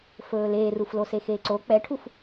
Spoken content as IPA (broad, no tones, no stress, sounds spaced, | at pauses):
f ɵː l eː r u f l o s e x eː ǀ o k͡p ɛ ʈʰ u f